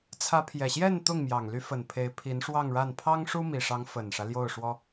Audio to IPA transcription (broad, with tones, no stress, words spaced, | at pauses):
t͡sʰä˧˥pʰjɛ˨˩ɕjɛ˥˧n t̪ʊ˥˩ŋmjɑ˨˩ŋly˧˥fə˨˩n pʰe˧˥ɪ̯pʰi˧˥nʂwɑ˥˧ŋɻa˥˩n pʰɑ˥ŋʂu˥mi˨˩ ʂɑ˧˥ŋfə˨˩nʂä˦ ljo˥˩ʊ̯ʂwɔ˥